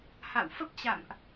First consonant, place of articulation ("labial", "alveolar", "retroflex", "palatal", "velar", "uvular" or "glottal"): glottal